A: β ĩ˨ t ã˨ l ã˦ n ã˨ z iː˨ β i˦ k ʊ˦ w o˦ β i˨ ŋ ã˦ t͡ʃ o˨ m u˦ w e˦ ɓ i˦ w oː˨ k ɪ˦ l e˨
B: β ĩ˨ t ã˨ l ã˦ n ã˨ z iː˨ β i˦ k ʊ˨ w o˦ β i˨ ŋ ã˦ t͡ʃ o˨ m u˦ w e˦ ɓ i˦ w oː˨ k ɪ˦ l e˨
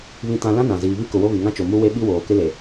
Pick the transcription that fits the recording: B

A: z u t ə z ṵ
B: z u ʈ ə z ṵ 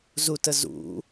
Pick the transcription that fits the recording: A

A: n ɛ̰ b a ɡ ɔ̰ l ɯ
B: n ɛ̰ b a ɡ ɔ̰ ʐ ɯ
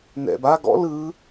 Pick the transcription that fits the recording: A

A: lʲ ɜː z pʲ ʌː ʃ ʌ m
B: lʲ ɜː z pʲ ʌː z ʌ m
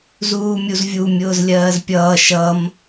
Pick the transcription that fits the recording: A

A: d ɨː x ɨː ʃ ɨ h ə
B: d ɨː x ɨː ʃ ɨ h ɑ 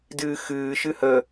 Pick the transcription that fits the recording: A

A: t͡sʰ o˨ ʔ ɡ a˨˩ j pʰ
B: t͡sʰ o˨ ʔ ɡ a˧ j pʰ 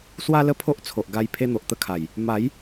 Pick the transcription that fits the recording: B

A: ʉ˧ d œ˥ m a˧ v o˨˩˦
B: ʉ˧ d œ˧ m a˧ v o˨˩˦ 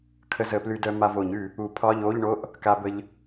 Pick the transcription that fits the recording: B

